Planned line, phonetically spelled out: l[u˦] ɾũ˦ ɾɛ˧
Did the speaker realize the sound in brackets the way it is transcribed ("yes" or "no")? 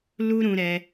yes